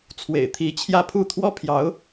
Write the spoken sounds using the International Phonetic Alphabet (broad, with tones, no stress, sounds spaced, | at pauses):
t͡sʰ w ḛ˨˩ ɪ̯ t̪ʰ i˧˥ t͡ɕʰ j ä˥˧ pʰ u˥˩ t̪ʰ w ɔ˥ pʰ j ɑ˧˥ ʊ̯